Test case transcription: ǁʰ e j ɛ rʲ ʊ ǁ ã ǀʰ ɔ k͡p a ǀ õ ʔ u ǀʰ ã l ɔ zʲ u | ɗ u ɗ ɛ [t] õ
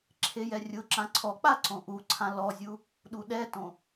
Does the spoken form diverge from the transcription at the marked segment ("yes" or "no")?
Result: no